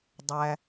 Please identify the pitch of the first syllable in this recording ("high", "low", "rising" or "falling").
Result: low